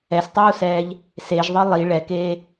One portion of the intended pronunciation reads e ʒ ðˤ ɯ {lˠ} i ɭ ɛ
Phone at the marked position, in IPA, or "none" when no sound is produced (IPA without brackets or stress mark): lˠ